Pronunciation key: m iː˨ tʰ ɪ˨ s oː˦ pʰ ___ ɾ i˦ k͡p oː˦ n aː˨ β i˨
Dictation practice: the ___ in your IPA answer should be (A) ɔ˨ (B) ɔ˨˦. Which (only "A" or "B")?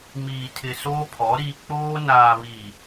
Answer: B